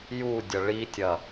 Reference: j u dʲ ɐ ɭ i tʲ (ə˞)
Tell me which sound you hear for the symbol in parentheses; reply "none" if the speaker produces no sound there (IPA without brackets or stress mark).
ɐ